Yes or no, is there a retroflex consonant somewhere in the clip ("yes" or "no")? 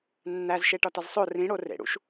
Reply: yes